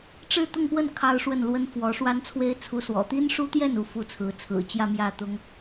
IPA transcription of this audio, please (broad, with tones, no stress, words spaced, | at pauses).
ʈ͡ʂɻ̩˥˧t̪ʊ˥˧ŋpwə˥˩n kʰɑ˥ʊ̯ʂwə˥˩nlwə˥n fwɔ˧˥ʂwa˥n t͡sʰwe˥ɪ̯t͡sʰu˧˥swɔ̰˨˩ t̪i˥nʂu˥t̪jɛ˥˩n u˥fu˥˩t͡sʰɹ̩˧˥ t͡sʰɹ̩˨˩ t͡ɕjä˥˧mjä˥˩t̪ʊ˥ŋ